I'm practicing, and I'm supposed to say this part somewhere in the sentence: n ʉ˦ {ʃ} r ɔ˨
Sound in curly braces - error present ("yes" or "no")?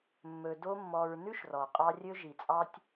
no